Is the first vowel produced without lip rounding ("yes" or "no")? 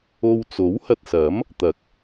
no